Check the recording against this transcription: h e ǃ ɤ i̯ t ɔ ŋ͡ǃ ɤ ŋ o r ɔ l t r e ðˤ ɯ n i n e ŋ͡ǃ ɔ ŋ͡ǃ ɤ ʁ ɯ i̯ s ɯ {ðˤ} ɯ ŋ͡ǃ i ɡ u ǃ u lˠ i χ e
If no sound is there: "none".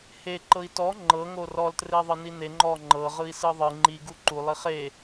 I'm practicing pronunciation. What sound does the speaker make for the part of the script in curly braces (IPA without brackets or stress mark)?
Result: ðˤ